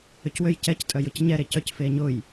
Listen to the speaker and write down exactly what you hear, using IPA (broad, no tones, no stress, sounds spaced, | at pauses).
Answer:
ʏ c w ø j c ɛ c tʼ œ j ʊ c ɲ ɛ ɾ e c œ c f e ɲ ʊ j